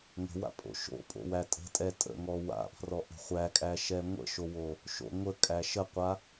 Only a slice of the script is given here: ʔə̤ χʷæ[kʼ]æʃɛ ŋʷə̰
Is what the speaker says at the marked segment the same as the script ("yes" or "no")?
yes